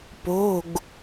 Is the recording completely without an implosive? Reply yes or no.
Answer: yes